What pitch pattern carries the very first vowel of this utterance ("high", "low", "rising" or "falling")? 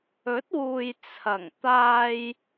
rising